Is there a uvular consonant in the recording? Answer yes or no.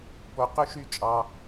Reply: yes